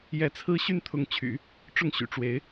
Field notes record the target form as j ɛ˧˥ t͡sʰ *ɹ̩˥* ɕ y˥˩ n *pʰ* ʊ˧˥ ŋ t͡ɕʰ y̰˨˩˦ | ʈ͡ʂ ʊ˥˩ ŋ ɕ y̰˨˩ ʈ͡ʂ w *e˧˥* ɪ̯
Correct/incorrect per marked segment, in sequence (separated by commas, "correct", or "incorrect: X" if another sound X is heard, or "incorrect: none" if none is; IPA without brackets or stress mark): correct, incorrect: t̪ʰ, correct